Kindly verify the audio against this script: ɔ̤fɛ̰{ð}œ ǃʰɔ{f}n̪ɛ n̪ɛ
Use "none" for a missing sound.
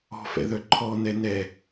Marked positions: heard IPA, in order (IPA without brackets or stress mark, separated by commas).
ð, none